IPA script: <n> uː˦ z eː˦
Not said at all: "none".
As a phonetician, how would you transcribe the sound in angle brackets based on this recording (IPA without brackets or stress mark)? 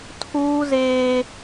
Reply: tʰ